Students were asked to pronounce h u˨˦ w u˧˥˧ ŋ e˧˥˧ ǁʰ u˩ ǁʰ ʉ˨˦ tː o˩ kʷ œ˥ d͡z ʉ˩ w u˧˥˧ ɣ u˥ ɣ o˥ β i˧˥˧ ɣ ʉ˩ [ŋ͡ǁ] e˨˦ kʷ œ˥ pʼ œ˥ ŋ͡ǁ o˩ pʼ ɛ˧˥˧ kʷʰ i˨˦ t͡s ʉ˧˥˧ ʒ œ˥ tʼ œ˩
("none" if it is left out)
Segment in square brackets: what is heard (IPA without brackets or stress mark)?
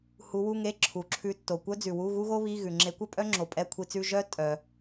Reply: ŋ͡ǁ